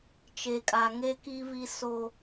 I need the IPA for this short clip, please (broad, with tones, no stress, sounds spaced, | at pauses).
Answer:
t͡ʃ e˨ kʼ a˨ ŋ e˦ k i˦ v i˦ s o˦